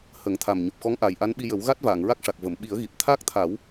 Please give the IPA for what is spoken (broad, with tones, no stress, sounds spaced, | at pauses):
h ə˨˩˦ ŋ t̪ʰ a˨˩ m ɲ o˨˩ p̚ x ɔ˧˥ ŋ ʔ aː˨˩ j ʔ a˧˥ n ɓ i˧ j ə˨˩˦ w ɣ a˦˥ t̚ v aː˨˩˨ ŋ ɹ a˦˥ k̚ ʂ a˨˩ k̚ v ə˨˩˨ m ɓ i˨˩˦ ə̯ ɣ i˨˩ p̚ t̪ʰ aː˦˥ k̚ t̪ʰ a˨˩˦ w